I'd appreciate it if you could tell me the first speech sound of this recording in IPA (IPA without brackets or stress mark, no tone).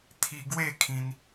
t̪ʰ